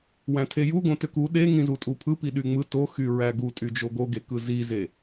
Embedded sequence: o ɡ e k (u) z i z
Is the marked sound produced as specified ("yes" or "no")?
no